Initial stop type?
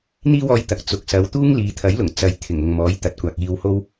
plain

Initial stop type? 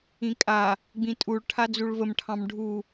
ejective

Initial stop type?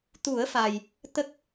plain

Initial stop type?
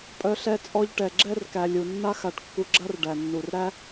ejective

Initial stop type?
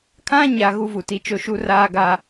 aspirated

